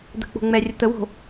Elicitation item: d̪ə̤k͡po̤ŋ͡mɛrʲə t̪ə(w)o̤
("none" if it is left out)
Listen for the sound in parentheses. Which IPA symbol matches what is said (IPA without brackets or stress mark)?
w